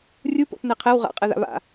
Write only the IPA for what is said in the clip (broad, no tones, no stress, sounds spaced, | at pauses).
rʲ u p o̰ θ n ɛ qʰ ɛ w ʁ a̰ qʼ ɛ ð a̰ β a̰